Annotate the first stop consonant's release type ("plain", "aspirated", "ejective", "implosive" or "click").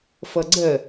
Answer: click